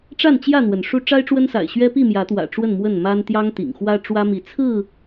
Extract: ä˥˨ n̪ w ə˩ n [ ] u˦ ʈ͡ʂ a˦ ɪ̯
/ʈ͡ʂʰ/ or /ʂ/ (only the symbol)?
ʂ